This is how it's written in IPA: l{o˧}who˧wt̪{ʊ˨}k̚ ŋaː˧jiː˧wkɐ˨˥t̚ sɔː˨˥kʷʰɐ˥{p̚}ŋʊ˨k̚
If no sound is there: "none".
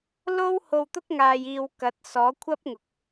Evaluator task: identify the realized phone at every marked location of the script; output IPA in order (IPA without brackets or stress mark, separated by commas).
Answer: o˥, ʊ˥, p̚